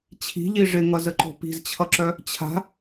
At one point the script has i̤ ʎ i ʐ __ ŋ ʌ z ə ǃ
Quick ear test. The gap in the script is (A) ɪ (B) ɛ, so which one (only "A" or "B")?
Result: A